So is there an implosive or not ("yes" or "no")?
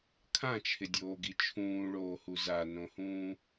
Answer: no